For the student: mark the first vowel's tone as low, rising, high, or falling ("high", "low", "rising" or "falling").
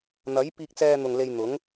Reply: rising